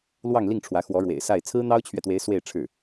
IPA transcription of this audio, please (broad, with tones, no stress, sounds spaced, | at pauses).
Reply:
l w ɑ˥˧ ŋ l i˥˩ ŋ ʈ͡ʂʰ w ä˧˥ x w ɔ˧˥ ɻ w ḛ˨˩ ɪ̯ s a˥˩ ɪ̯ t͡sʰ ɹ̩˥ n̪ ɑ˥ ʊ̯ t͡ɕʰ ɥ ɛ˨ t̪ w e˧˥ ɪ̯ s w e˥˧ ɪ̯ ʈ͡ʂʰ ɻ̩˥˩